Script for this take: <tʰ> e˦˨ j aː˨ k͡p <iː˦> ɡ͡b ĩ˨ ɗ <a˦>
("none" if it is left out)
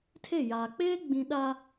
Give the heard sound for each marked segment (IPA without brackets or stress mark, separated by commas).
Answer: tʰ, eː˦, a˦